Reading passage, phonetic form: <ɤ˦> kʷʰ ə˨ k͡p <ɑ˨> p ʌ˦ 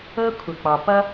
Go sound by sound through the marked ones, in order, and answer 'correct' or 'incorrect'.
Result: correct, correct

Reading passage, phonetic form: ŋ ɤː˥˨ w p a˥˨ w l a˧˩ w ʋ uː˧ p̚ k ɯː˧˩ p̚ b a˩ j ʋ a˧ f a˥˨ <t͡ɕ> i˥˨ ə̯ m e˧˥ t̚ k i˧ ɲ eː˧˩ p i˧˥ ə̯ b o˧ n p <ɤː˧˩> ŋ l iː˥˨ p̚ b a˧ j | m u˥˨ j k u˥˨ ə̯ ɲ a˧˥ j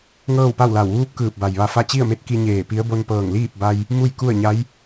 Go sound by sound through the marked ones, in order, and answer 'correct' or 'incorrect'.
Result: correct, correct

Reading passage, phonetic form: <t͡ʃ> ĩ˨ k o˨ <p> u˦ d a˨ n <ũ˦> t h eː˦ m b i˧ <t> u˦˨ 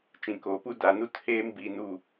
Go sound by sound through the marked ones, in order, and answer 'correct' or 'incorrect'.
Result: correct, correct, incorrect: u˦, incorrect: n

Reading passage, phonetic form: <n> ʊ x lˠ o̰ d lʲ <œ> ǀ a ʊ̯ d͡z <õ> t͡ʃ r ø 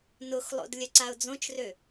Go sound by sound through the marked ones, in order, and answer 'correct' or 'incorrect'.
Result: correct, correct, correct

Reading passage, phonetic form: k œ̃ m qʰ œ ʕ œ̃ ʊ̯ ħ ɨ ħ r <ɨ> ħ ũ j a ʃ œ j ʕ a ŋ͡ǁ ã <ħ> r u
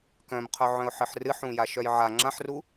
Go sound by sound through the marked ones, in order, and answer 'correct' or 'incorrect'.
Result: correct, correct

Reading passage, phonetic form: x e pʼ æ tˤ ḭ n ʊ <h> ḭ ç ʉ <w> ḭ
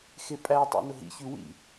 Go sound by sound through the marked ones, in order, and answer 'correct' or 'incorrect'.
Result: incorrect: ɦ, correct

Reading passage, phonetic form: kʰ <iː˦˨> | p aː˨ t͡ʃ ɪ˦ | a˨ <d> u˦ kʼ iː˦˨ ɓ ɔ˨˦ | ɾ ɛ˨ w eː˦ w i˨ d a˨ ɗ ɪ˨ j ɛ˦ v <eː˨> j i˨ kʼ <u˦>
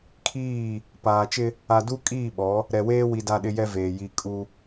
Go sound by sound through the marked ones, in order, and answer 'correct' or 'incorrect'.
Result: correct, correct, correct, correct

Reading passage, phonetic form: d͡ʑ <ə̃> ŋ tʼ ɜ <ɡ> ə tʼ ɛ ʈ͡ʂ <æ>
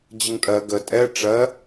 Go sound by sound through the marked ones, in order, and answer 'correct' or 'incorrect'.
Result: incorrect: ə, correct, incorrect: ɜ

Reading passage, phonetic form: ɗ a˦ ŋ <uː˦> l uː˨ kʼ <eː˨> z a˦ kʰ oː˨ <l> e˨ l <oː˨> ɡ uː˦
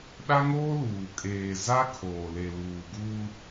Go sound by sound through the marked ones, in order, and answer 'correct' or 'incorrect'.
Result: incorrect: oː˦, correct, correct, incorrect: uː˨

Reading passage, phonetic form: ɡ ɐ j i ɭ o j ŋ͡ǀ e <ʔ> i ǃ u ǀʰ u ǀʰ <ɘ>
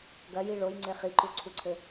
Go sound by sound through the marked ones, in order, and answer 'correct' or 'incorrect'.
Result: incorrect: χ, correct

